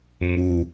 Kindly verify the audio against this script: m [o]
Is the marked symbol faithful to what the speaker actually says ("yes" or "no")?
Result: no